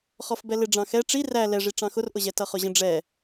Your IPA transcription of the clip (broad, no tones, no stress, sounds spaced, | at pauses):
χ ɔ f b ɛ l ɪ ɖ͡ʐ ɑ̃ x ɛ ʈ͡ʂ i r æ l ɛ ʐ i ʈ͡ʂ ɑ̃ x ʊ r ʔ ʊ ʑ ɛ t ʌ χ ʊ ʑ ə̃ ɖ͡ʐ ɛ